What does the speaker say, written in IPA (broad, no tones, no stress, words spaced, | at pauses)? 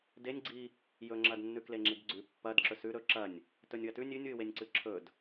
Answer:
denʲɡ͡ǀi | jɵŋ͡ǁɐdnːʉkle ŋ͡ǁidɡ͡ǀʉ pːɐd ǁɵsʉ ɾɵ ǁɐnʲ | tɵnʲwɐtʉ nʲʉnʲwɨ wenʲǀɨǁʰɵd